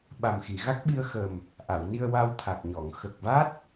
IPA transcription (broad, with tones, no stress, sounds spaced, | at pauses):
ɓ a˨˩ m x i˨˩˨ ɣ a˦˥ k̚ ɓ i˧ ə̯ x ə˨˩ m | ʔ a˨˩˨ w n i˧ ə̯ w a˧ w t̪ʰ a˨˩ k̚ ɲ ɔ˨˩˨ ŋ x ə˨˩ k̚ v a˦˥ t̚